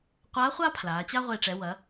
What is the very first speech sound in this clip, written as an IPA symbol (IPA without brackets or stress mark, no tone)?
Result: qʷ